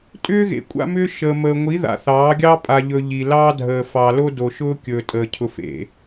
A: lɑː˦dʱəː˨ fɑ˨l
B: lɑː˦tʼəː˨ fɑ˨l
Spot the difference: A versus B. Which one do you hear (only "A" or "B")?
A